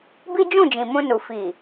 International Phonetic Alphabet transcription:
b i˦ d͡ʒ ũ˦˨ d͡ʒ ĩ˨ m ũ˧ n u˨ f i˨

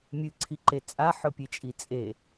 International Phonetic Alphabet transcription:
mʲ ɨ ǀʰ i ǃ e t͡sʼ a ħ ɵ pʲ e t͡ʃʼ i t͡sʼ e

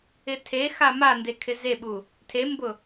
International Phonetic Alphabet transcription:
ɪ tʰ e x a m a n d e kʰ ɪ z e ɓ u | tʰ e m b ʊ

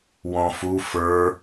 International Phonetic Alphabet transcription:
w ɔ̃ f u f ə˞

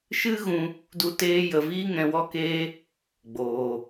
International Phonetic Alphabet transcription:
ʃ ɨ˦ ɣ ũ˧ | d u˦ t eː˦ j ə˧ v iː˦ ŋ ɛ̃˧ w ɔ˦ k eː˦ | ɡ͡b oː˧

